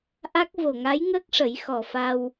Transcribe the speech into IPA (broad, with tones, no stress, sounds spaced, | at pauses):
ʔ a˦˥ k̚ v o˨˩ ŋ a˧˥ j ŋ əː˦˥ k̚ ʂ ə˨˩˦ j x ɔ˨˩ f a˧ w